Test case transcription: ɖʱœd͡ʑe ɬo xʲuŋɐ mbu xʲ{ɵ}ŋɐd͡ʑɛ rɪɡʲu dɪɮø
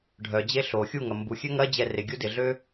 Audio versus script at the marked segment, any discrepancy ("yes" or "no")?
yes